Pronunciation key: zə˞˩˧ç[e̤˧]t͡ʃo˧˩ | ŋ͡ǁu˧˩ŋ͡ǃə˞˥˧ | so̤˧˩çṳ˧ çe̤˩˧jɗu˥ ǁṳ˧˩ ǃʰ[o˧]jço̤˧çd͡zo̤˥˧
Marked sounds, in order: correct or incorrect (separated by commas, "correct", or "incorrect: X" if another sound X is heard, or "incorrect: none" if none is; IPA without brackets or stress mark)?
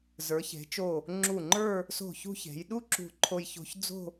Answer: incorrect: e̤˩˧, correct